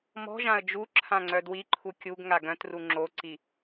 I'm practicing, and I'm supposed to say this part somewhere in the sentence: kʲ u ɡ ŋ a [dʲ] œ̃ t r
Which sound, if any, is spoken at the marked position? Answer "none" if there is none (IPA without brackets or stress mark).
ɡ